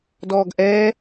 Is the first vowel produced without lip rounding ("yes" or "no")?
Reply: no